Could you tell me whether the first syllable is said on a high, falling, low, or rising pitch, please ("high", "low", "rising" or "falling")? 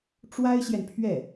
high